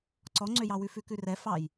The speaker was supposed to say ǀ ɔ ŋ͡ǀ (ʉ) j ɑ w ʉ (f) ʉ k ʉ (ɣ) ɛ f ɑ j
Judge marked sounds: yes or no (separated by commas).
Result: no, yes, no